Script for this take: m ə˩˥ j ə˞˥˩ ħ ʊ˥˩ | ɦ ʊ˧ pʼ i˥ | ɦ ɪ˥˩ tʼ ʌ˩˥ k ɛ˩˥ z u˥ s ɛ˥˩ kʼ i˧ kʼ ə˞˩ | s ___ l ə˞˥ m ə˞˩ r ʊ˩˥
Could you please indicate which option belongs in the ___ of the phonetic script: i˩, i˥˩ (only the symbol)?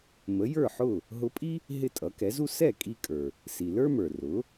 i˩